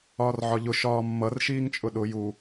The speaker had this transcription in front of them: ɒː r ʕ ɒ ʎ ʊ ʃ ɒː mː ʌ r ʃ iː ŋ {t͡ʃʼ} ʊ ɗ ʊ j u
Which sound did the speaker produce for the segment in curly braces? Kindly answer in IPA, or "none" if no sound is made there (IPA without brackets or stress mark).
t͡ʃʼ